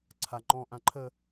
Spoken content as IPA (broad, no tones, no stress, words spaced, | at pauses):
ǀʰa ŋ͡ǃɔ̃ ʔãǃʰə